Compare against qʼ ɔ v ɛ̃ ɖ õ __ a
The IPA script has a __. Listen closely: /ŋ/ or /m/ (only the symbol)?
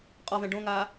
ŋ